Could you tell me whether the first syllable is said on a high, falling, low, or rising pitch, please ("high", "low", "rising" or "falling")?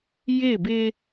falling